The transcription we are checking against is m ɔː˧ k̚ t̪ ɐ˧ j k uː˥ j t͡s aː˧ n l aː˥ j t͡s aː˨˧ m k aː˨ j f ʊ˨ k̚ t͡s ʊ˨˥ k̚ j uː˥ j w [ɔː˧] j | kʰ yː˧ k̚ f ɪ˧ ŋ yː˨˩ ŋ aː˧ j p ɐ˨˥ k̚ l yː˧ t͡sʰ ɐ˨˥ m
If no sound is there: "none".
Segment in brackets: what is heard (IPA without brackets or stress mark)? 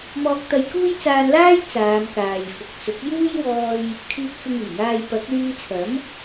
ɔː˧